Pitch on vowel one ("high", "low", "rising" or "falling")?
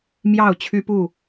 falling